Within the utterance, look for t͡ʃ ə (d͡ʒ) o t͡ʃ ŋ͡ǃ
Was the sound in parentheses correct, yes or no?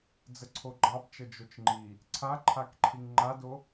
yes